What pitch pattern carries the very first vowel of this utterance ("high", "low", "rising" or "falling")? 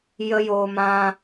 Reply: high